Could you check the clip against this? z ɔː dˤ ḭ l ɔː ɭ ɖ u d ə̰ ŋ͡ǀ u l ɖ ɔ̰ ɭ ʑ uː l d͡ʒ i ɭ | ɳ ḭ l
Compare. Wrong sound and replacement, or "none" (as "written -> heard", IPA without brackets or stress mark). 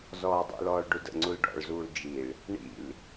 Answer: ʑ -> z